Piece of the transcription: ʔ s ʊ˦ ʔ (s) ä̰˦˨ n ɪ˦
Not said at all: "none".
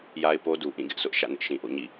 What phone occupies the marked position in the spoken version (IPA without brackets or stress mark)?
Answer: ʃ